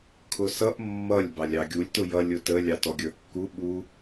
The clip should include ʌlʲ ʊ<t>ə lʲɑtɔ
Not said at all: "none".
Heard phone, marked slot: t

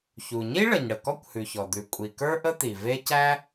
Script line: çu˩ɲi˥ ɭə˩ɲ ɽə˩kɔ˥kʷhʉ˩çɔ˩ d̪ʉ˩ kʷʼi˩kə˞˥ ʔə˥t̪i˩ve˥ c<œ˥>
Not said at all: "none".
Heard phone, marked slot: æ˥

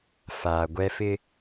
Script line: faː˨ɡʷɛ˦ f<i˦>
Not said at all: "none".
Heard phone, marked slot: ɪ˦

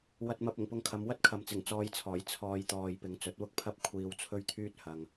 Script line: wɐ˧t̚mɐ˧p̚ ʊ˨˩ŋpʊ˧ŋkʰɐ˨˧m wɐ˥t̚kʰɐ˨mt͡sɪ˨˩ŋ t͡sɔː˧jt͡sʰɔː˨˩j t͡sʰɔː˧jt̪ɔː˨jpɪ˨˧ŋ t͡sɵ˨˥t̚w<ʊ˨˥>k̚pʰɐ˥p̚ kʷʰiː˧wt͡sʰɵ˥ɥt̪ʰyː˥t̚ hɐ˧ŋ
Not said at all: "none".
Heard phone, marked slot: ʊ˥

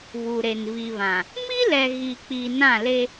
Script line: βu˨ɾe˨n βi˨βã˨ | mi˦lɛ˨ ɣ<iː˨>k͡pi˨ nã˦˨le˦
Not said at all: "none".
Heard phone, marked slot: i˨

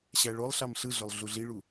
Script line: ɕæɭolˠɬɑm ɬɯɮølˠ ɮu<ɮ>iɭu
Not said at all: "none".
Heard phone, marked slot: ɮ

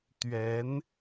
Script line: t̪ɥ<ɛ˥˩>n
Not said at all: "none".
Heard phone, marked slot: ɛ˧˥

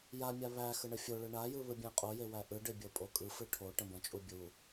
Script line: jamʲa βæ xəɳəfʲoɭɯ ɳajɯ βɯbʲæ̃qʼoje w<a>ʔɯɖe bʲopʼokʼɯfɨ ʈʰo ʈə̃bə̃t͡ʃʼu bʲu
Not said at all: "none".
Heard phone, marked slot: æ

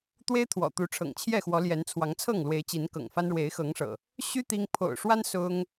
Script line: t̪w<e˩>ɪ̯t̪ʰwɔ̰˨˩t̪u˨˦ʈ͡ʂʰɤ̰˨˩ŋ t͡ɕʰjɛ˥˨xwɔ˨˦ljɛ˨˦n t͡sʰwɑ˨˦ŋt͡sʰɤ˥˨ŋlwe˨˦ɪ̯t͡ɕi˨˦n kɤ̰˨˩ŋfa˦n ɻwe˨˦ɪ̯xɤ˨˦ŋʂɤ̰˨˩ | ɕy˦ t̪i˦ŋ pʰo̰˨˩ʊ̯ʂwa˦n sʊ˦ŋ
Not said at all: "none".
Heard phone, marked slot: e˦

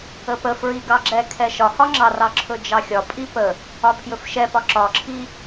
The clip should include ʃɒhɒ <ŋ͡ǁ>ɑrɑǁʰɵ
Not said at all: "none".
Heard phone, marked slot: ŋ͡ǁ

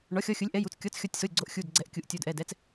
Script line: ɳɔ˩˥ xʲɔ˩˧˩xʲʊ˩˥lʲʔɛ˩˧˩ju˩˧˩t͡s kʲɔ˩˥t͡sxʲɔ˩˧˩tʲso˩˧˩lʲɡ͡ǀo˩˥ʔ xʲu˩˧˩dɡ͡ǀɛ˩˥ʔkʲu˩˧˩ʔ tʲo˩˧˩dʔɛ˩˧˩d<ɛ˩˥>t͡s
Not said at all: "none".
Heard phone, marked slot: ɛ˩˥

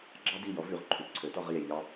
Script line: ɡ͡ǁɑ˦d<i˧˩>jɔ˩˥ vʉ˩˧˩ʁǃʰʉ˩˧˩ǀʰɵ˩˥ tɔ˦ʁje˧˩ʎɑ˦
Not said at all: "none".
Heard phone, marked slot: i˧˩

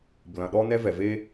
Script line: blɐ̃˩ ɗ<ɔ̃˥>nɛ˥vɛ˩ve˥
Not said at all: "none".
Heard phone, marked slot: ɔ˥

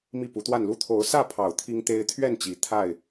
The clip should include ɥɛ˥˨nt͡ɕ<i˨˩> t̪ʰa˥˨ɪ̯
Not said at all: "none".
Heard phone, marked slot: i˨˩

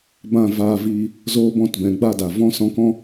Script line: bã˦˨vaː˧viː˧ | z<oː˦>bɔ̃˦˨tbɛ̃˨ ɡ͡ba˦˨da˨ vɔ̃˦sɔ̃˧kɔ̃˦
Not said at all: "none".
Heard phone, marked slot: oː˦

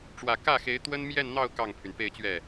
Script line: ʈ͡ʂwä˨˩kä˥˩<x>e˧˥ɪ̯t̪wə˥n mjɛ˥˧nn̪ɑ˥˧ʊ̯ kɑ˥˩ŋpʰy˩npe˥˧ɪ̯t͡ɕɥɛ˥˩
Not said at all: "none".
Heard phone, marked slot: x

